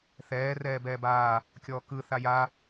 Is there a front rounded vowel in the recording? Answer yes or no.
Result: no